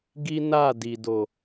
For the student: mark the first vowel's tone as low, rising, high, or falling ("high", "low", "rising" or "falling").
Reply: high